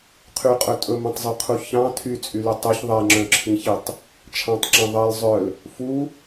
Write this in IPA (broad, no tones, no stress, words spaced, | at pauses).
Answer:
qʰyqʼɵ tʼɵmɛ̃tˤzˤɵqʰu çɑ̃ tʰyt͡sʼyly tˤɵç ðˤɛŋ͡ǁœ̃ǁʰĩçitˤ | t͡ʃʰɑ̃tˤǁɑ̃ ðˤɛl zˤœl | fu